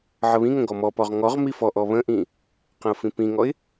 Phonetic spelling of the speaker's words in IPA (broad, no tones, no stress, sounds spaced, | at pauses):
ʕ ə β ĩ ŋ ə̃ ɡ ɔ m ɔ p ɔ ʁ ŋ ɔ ʁ m i f ɔ ʔ ɔ β ə̃ ʔ ĩ | q ə̃ ʊ̯ f ĩ p ĩ ŋ ɔ ɪ̯